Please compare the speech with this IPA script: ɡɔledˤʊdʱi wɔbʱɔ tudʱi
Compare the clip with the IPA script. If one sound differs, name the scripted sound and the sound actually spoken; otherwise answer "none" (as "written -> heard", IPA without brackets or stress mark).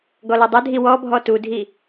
none